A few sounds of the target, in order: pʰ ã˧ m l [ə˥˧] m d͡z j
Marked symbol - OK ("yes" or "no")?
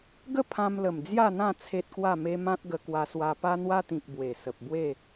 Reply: no